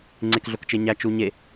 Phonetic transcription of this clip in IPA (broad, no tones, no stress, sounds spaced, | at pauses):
ŋ͡ǀ e k ɮ o k t͡ʃ e ɲ æ t͡ʃ u ɲ e